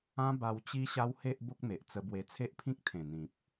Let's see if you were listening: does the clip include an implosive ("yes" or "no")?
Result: no